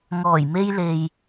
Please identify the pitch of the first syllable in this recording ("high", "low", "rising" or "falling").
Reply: low